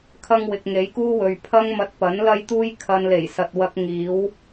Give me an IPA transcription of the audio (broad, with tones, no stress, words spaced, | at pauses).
kʰɐ˥ŋwɪ˧k̚ ŋe˨˥jkuː˥wɵ˨ɥpʰɐ˥ŋ mɐ˧t̚pɐ˨˥nlɐ˥jt̪uː˥j kʰɐ˧nle˨˩jsɐ˨t̚ wɐ˧k̚ ŋiː˨˥w